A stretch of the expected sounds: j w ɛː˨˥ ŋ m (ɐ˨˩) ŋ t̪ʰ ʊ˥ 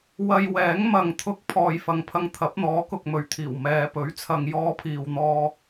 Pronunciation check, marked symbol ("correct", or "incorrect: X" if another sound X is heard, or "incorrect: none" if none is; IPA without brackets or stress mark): incorrect: ɐ˨˧